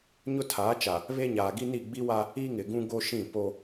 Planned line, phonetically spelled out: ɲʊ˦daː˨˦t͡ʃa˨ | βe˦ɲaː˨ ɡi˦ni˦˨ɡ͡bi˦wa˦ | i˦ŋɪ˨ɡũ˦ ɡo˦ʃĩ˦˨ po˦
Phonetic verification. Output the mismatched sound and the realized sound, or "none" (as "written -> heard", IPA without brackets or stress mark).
d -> tʰ